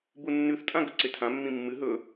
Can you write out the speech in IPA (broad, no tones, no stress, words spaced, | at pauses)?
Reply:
bunːʉθtʼã ɡɵǀetʰãmːĩ mːɨ ɦɵ